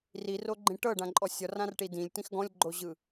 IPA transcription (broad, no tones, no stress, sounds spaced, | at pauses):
r i r o ɡ͡ǃ ĩ ʈ ɤ ɖ ã ǃʼ ɔ sʲ ɔ r ã r ʈ i d ĩ lʲ t ĩ x ɡ ɔ̃ lʲ ɡ͡ǃ o ʑ ɯ